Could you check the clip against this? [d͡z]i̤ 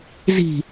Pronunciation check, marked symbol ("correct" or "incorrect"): incorrect